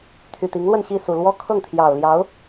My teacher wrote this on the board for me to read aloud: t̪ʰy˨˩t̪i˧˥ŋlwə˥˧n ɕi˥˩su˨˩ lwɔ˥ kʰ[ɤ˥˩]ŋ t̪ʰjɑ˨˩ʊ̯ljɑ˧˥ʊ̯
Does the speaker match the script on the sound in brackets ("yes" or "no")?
yes